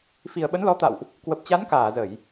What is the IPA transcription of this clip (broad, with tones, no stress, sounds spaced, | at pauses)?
f i˨˩ ə̯ ɓ ə˨˦ n l ɔ˨˦ t̪ a̰˧˨ w ʔ | k w ə˨˩ p̚ t͡ɕ a˨˦ n k aː˧˩ z ə˧˩˨ j